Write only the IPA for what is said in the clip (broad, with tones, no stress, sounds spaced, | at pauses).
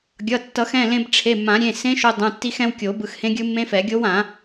ɡʲ ʌ˩˧˩ tː ʌ˨˩˦ x ɛ̃˩˧˩ l ẽ˧ b ʈ͡ʂʰ e˩˧˩ mː ã˨˩˦ ɾʲ ẽ˩˧˩ s ẽ˦˥ ʃ o˧ dˤ ũ˩˧˩ tː i˦˥ x ɛ̃˦˥ w kʲ o˨˩˦ b ɯ˧ x h ẽ˦˥ ɡʲ ɯ˦˥ mː ẽ˦˥ f ɛ˨˩˦ ɡʲ o˦˥ w ã˨˩˦